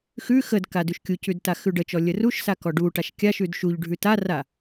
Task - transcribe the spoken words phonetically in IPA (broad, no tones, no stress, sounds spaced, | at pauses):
x ʉ x ə d k a d ʉ ʃ kʲ u c ʉ d t a x ʉ ɖ ə t͡ʃ ɔ lʲ ə r u ʃ s a k ɔ ɖ u ʈ a ʃ kʲ a ʃ ʉ d ʃ u ʎ ɖʱ ʉ t a r a